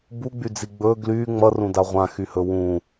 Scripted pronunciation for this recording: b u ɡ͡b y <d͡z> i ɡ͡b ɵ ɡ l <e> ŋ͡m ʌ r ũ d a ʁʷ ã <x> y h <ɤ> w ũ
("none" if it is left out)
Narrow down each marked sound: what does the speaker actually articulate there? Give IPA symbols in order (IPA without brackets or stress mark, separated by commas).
d͡z, y, x, ɵ